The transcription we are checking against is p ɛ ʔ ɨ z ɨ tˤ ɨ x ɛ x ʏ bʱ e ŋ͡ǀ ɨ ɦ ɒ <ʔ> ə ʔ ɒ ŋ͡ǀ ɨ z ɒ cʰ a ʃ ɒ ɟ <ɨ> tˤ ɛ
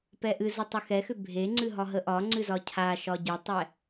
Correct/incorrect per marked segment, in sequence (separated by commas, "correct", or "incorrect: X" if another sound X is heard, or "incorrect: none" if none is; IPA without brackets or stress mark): incorrect: ɦ, correct